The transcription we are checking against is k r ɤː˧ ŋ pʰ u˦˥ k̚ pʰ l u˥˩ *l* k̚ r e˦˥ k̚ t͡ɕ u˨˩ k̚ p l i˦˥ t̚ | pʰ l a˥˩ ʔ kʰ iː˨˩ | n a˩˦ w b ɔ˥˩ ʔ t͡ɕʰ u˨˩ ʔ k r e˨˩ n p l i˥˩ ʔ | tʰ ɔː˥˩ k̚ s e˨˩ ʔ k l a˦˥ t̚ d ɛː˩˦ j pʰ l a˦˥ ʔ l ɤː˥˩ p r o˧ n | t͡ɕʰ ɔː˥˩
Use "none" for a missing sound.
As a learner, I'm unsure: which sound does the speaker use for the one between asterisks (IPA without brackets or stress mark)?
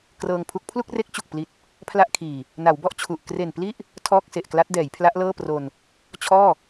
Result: none